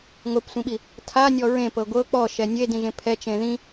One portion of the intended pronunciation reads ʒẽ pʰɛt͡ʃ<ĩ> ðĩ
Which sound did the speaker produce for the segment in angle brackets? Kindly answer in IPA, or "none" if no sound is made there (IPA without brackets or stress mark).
ẽ